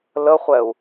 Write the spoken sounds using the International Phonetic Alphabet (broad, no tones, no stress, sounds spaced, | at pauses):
l ə χʷ ɛ u̯